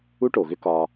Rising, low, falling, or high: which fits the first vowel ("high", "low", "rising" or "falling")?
high